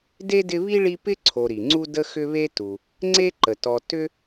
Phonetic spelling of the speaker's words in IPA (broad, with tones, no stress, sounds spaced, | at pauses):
d e˥ d ɪ˦ β i˥ ɭ i˦ p ɪ˥ ǀʰ o˨ ɾ i˩ ŋ͡ǀ u˥ d ə˦ x ʏ˦ β e˦ t u˩ | ŋ͡ǀ e˥ ǃ ə˩ t ɔ˨ t ʏ˥